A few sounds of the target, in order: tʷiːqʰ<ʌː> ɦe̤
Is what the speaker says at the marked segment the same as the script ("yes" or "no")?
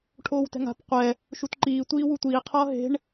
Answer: yes